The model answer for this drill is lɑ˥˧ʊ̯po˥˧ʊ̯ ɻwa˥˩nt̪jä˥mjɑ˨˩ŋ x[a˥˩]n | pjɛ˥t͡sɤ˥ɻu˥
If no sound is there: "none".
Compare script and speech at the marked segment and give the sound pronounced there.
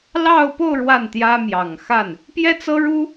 a˥˩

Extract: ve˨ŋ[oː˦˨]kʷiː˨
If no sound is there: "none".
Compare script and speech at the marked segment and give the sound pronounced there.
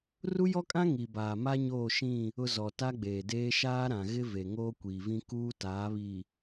oː˦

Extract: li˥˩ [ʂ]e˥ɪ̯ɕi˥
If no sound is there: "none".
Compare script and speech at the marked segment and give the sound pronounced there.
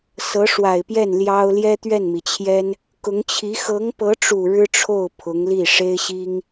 ʂ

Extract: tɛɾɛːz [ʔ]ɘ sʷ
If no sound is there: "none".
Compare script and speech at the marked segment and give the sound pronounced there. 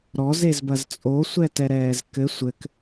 k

